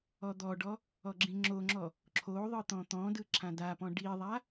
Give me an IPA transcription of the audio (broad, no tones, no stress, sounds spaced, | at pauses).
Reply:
ɔ d̪ ɔ ɖ ɔ | ɔ ɡ͡ǁ ĩ ŋ͡ǁ o ŋ͡ǁ ɔ | ǁʰ o ðˤ ɯ t̪ ɔ̃ t̪ ɔ̃ d ɯ ǁʰ ã d a p ɔ̃ ɖ i ðˤ a